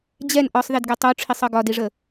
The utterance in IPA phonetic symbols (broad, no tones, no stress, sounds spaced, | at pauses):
d͡ʑ ɛ n ʔ ɒ sˤ ð i d ɡ ɛ tˤ o ʈ͡ʂʰ i sˤ ɤ ɡ ɒ d i ʐ ə